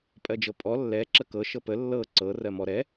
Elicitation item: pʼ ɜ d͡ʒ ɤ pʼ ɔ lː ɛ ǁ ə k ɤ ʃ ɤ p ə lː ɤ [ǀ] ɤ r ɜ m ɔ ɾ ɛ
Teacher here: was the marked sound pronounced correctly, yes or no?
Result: yes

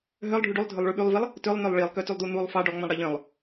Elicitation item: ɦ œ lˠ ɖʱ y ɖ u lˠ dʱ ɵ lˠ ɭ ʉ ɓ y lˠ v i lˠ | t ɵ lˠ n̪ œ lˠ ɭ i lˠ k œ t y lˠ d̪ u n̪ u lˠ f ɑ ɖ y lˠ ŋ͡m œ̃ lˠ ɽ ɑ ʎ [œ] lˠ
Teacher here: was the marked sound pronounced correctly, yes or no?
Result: no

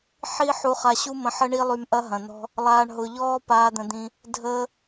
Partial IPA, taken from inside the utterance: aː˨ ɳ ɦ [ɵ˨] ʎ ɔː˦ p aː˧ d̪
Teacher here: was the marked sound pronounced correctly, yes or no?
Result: no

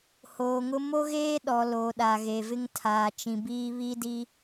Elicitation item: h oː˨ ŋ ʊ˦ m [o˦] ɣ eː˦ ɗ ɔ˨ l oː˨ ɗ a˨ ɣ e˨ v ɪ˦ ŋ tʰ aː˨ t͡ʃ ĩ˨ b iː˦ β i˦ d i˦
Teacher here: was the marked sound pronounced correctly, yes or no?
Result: yes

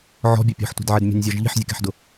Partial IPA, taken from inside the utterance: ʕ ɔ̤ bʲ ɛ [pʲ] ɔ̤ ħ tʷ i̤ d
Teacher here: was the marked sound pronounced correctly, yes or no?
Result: yes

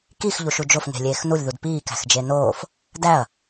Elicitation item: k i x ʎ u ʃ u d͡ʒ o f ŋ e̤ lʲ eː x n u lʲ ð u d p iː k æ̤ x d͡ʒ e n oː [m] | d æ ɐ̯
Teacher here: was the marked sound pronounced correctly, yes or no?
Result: no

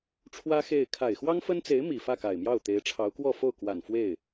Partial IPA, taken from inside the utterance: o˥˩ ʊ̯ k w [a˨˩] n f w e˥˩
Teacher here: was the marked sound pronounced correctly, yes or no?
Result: yes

